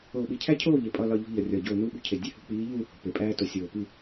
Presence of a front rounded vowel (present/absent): absent